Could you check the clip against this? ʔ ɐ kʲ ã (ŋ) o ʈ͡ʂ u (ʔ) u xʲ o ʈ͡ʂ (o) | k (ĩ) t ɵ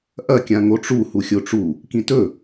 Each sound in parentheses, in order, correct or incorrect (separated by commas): correct, incorrect, incorrect, correct